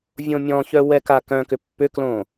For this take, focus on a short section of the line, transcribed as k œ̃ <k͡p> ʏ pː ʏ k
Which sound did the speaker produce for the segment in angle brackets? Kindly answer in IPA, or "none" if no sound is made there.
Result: k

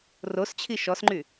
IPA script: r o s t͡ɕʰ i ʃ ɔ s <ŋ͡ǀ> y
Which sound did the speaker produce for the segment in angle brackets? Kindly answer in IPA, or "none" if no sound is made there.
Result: ŋ͡ǃ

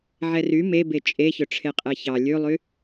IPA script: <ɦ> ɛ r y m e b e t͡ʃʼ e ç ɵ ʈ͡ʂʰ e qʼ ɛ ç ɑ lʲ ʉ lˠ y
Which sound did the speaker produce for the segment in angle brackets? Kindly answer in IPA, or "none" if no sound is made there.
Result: ʕ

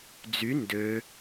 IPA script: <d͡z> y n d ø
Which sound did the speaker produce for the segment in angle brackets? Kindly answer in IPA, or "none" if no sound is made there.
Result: d͡z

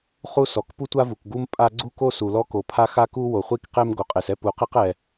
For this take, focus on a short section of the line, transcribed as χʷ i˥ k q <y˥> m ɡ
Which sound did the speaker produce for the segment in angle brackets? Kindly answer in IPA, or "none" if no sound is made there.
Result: e˥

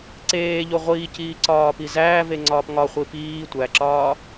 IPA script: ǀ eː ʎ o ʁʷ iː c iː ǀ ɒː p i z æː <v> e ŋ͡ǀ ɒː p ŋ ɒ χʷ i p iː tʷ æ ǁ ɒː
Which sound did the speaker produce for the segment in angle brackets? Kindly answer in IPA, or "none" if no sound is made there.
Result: v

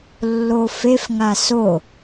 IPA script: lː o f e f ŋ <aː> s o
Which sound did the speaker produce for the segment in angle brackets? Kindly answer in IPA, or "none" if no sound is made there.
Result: a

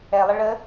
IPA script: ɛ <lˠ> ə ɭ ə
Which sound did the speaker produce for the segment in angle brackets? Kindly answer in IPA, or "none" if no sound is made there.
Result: lˠ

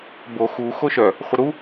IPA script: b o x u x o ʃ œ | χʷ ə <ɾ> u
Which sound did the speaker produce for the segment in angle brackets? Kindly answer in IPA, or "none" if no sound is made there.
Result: ɾ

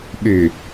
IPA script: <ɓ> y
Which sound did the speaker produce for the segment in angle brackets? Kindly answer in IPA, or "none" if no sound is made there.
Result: ɓ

